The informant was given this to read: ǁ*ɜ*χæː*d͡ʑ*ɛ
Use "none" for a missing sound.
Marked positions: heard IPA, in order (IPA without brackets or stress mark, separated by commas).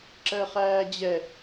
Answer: ɜ, d͡ʑ